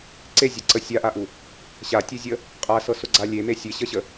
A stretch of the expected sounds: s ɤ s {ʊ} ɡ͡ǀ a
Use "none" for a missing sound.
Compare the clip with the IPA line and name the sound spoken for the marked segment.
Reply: ʊ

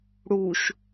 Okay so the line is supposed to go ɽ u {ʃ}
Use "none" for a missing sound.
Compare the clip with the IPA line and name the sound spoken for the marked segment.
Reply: ʃ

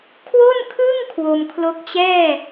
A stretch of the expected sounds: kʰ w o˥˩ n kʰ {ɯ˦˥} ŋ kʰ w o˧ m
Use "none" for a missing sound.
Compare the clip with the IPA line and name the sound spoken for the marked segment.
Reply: ɯ˥˩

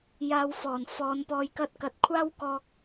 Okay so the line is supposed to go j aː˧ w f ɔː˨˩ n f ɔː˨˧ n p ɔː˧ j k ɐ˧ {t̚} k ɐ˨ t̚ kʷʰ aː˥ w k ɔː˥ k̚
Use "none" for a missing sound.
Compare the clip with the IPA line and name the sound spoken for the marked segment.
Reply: t̚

